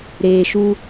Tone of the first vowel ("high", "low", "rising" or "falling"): low